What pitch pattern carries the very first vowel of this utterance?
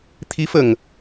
rising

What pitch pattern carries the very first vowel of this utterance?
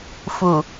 low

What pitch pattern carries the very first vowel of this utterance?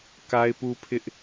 high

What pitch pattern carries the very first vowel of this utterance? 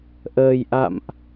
low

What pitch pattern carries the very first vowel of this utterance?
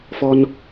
high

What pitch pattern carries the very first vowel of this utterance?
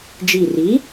low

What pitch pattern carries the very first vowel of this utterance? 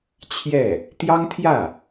falling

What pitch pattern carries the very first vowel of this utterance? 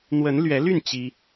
rising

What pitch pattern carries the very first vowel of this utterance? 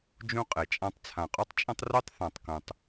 high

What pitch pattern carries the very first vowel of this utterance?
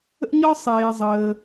high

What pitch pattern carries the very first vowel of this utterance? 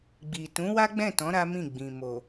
low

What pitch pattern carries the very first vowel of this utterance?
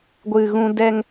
low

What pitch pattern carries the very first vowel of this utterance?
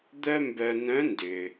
high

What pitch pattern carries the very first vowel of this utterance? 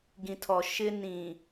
low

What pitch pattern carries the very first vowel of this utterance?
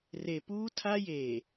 low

